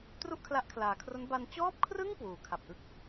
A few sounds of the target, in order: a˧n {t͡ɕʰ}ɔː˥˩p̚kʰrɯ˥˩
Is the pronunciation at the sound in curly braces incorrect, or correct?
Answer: incorrect